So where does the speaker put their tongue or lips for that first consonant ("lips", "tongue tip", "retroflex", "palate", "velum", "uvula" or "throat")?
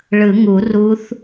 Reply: retroflex